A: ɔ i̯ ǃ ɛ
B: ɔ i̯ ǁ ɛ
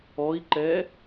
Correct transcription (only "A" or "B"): A